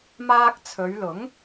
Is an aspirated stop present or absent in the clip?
present